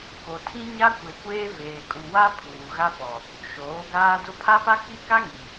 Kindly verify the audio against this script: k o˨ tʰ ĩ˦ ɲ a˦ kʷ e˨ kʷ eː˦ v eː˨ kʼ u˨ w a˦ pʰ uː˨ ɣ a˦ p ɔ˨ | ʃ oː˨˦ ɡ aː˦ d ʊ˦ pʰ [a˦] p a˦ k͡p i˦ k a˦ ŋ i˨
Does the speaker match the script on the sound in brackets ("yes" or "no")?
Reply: yes